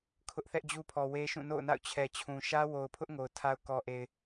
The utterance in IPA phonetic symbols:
kʰʊ˦ʔθɛ˦ʔd͡ʑu˦pʰɔ˨ we˦ʃũ˦˨ no̰˦˨ʊ̯na̰˦˨ʊ̯ t͡ɕʰɛ˨ t͡ɕʰũ˨ ʃä˦wo˨ʊ̯pʰʊ˦ʔ ŋo˨ʊ̯tʰa˦ʊ̯ kɔ˨ ʔe˨ɪ̯

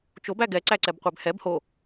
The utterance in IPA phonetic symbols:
t͡ʃobæ ɡɛǀæ ǀɛbqʷæbhɛb ho

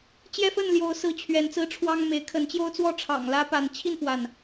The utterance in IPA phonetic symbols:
t͡ɕjɛ˦fə˥˨nljo˨˦ʊ̯sɹ̩˨˦ t͡ɕʰɥɛ˨˦nt͡sɹ̩˦ʈ͡ʂʰwɑ˦ŋme˨˦ɪ̯ kʰə˨˦n t͡ɕjo˦ʊ̯t͡swɔ˥˨ ʈ͡ʂʰɑ̰˨˩ŋlä˦pa˨˦n t͡ɕʰi˥˨nfwa˩n

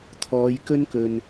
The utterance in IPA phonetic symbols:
t̪ʰɔː˨˧jkɵ˥nkɵ˨n

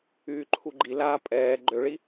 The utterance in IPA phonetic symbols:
yːǃʰuɡ͡ǃi laːpʼɛː ɡ͡ǃøɭi

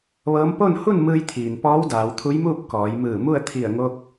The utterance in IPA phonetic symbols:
ʋɤː˧˥m po˥˨n hu˥˨nmɯː˧jt̪ʰiː˩n pɔː˧˥wdaː˩˧wt̪ʰu˧˥jmuː˥˨p̚ kɔː˩˧jmɯː˧˩mu˥˨ə̯ t̪ʰi˧˩ə̯ŋo˧k̚

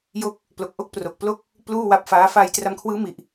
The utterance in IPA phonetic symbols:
jo˦˥k̚ | plo˨˩k̚ʔo˥˩k̚pro˨˩k̚ plo˦˥k̚ | pluː˥˩wa˦˥p̚faː˦˥ fa˧j tra˧mkʰwɯː˦˥mi˨˩ʔ

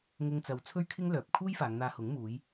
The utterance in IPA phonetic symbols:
ŋʊ˧ŋt͡sɐ˨w t͡sʰɵ˥ɥkʰɪ˥ŋ lœː˨p̚ kʰuː˥jfaː˨˧ŋn̪aː˧hʊ˨˥ŋ muː˨˧j

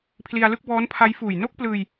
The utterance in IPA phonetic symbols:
pʰli˧a̯lɯ˥˩k̚ bɔː˦˥npʰa˦˥jfuː˨˩j no˥˩k̚plɯː˧j

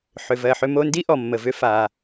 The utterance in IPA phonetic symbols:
ħʏ˩vɜ˩ħʏ˧ mo˧ndi˥ ʔɔ˩mːə˩vʏ˧ fa˩

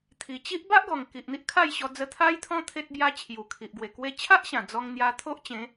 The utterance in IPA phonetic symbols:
t̪ʰi˨˩t͡ɕi˦ʔ ba˦ʔɡɔ˨˩ŋ ki˨ʔn̪i˦ʔkʰa˥˧jɕɔ˧ d͡zə˧t̪ʰa˦jt̪ʰɔ̃˦ t̪ʰe˦t̚bja˦ t͡ɕʰju˨˩kʰi˨ʔɡwe˨˩ kwe˧t͡ɕʰa˦ʔɕã˨˩ d͡zɔ˧ŋ n̪ja˧t̪ʰo˦ʔt͡ɕẽ˨˦

